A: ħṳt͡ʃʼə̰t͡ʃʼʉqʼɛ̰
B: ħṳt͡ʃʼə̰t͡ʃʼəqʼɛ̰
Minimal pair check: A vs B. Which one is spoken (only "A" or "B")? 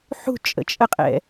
B